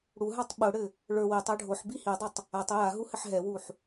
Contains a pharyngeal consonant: yes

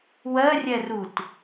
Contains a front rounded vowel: no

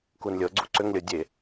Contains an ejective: no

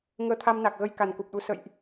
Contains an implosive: yes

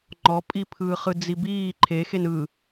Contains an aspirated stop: yes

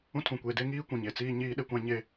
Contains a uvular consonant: no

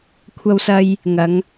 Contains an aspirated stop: yes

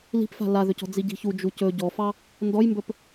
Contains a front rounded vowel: yes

